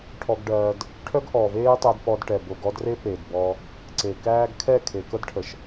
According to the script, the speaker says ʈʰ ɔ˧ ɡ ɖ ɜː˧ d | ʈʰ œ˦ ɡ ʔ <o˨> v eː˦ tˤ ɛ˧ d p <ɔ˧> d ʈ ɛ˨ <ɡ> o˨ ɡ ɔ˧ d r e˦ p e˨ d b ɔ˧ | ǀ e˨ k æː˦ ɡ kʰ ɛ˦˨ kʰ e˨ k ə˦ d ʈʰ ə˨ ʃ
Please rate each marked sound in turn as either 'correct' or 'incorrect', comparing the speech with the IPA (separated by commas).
incorrect, correct, incorrect